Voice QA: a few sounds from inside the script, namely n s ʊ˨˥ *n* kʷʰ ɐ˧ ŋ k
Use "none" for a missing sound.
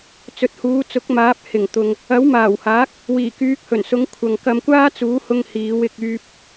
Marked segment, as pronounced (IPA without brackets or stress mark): ŋ